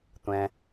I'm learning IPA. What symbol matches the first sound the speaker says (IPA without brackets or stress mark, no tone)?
tʷ